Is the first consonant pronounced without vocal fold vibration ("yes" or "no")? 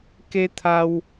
yes